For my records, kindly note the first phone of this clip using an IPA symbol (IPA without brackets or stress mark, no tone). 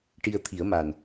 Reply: ʈ